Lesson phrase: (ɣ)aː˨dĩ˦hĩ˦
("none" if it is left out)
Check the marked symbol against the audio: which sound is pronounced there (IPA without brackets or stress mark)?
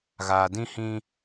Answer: ɣ